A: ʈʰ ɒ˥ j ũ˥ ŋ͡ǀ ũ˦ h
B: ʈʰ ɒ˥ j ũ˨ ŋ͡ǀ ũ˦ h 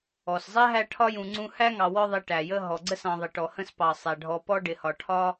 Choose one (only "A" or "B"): B